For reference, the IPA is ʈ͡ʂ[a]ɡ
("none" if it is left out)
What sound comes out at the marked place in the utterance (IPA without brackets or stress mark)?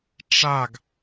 a